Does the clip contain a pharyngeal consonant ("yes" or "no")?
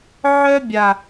yes